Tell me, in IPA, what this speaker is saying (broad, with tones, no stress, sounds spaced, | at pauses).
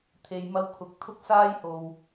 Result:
t̪ʰ e˧ j m ɐ˥ w kʰ ʊ˧ k̚ t̪ʰ ʊ˥ k̚ s aː˥ j h o˨ w